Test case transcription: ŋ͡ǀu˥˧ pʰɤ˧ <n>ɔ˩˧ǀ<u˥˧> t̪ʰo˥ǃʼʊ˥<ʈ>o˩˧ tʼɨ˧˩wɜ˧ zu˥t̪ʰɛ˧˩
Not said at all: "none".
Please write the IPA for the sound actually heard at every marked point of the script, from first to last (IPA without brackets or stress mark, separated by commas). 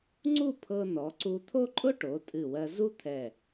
n, u˧, ʈ